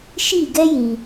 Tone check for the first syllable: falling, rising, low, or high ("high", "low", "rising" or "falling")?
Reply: falling